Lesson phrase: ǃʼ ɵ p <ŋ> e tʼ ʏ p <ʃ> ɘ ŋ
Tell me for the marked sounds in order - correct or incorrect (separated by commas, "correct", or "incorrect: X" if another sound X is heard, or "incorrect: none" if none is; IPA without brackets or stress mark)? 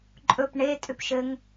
incorrect: ɳ, correct